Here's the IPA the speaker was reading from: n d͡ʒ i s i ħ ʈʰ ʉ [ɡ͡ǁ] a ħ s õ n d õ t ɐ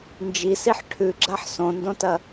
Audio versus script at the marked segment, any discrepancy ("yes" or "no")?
no